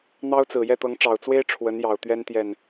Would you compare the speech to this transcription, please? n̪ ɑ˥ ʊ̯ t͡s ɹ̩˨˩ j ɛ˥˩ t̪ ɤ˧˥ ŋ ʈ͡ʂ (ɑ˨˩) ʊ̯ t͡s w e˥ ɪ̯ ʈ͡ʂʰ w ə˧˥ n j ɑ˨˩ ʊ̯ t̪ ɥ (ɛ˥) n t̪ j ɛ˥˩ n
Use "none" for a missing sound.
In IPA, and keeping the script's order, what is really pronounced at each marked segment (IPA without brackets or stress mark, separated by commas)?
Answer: ɑ˨˩, ɛ˥